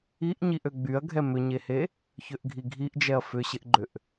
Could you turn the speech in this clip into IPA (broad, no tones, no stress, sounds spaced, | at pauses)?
i ʔ ɲ i ʔ ø ɡ͡b y ɐ̯ ɡʱ ɛ m ʏ ɲ e h e | ç ø ʔ ɡʱ i ɡʱ i ʔ d͡ʒ ɛ ɐ̯ f ʏ ɕ ɪ ʔ ɡ͡ǃ ʏ ʔ